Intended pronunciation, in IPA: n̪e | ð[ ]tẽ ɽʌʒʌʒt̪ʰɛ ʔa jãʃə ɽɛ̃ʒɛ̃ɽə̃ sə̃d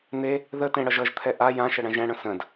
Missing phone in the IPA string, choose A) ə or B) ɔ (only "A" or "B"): A